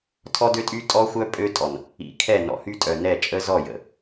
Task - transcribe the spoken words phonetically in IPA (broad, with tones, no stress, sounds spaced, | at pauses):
tʰ ɔ˦ d ø˦ tʼ y˦ tʼ ɔ˦ xʷ œ˦ pʼ ø˦ tʼ ɔ˨ n | ḭ˨˦ kʰ ɛ˦˨ n ɔ̰˨ h y˦ tʼ œ˨ n ɛ˦˨ t͡ʃʼ ə˦ z ɔ˦˨ j ə̰˨